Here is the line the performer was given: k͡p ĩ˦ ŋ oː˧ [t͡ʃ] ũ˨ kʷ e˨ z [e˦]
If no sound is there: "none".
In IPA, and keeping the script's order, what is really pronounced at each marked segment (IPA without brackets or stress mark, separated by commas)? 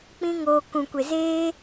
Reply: k, eː˦